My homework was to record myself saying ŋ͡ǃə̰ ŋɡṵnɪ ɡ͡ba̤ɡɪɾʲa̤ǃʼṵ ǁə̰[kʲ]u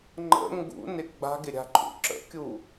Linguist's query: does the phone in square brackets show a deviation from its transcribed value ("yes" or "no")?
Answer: no